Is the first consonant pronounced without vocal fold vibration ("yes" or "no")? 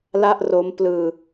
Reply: no